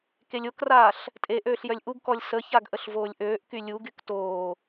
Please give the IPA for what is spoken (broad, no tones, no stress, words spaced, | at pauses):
kelʲokraːɬ | tʼe ʔøːɬjœlʲʔuɡkɔlʲ səçaɡ ʔəɬvoːlʲʔøːʔ kylʲuɡyk toː